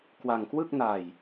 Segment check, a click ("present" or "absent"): absent